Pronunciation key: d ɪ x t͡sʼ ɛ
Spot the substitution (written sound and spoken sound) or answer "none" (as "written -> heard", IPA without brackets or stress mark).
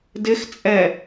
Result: none